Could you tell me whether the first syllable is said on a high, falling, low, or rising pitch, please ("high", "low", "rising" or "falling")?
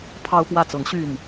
high